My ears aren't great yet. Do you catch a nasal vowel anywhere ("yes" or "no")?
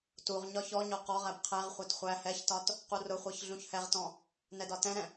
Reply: yes